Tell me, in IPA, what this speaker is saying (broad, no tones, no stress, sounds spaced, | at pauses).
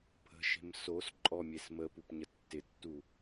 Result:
pʰ ə̤ ʃ e̤ m s o s ǃʼ ɔ mʲ e s m ə p u p ɲ ə tː ɪ tː u